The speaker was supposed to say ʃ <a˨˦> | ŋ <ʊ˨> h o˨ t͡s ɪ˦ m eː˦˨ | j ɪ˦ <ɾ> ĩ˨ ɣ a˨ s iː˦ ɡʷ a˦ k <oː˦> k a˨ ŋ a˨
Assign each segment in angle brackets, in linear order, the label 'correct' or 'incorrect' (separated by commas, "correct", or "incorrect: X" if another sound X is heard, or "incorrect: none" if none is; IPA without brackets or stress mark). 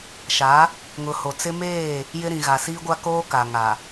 correct, correct, correct, correct